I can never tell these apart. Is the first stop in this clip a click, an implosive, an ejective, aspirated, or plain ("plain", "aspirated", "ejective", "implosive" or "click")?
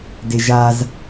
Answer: plain